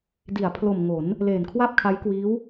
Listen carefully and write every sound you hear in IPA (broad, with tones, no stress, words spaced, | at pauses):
di˩˦a̯pʰlo˨˩m ŋo˩˦n | leː˨˩nkʰwa˥˩p̚kʰa˦˥jkwiː˦˥w